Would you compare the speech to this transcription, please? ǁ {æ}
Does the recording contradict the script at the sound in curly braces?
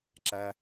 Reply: no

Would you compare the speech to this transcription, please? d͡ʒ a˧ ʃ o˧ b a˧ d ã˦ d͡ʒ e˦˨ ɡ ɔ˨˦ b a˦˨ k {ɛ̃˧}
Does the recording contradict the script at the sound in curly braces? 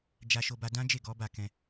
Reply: no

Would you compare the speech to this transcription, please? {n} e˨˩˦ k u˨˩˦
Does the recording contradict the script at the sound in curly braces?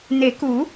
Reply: no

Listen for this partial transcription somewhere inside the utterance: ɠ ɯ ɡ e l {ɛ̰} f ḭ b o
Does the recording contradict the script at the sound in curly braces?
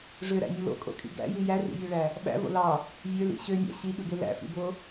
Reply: yes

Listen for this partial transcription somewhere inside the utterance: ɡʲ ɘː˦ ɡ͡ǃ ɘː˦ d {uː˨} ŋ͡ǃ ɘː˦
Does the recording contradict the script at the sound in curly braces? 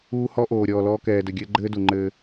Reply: yes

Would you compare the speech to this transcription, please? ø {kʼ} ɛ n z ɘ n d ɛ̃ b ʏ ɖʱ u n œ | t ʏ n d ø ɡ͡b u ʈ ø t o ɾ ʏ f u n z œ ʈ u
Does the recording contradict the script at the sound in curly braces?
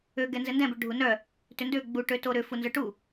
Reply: yes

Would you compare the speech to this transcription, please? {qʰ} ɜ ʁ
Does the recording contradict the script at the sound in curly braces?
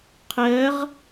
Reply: no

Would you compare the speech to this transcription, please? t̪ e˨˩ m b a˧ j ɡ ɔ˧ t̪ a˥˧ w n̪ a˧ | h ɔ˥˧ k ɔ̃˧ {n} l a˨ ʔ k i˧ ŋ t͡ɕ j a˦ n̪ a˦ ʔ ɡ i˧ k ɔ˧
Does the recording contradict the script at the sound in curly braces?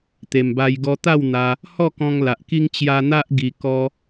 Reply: yes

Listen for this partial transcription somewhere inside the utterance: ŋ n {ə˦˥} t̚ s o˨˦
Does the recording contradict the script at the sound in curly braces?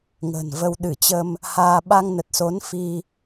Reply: yes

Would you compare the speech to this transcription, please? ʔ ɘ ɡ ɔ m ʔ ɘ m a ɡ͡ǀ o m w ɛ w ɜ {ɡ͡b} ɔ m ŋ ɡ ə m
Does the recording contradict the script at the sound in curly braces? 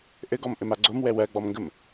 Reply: no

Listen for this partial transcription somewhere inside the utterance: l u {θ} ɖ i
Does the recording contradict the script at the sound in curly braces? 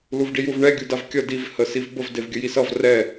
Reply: yes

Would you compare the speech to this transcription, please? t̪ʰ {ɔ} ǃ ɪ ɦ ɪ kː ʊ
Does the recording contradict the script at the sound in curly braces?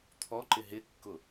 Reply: no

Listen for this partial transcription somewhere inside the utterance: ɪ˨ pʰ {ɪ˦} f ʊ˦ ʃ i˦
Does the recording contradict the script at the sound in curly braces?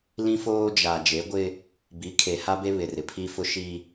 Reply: yes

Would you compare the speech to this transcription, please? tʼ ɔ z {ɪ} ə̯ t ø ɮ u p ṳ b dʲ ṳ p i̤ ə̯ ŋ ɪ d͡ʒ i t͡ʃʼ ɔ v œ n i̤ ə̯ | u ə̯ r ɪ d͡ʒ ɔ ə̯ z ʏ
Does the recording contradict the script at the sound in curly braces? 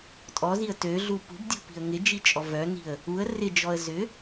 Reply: yes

